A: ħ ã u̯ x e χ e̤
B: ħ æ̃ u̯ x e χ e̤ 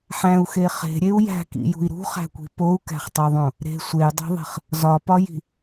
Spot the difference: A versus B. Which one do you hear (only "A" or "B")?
B